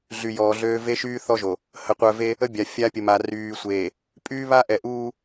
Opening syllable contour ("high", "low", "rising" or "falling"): low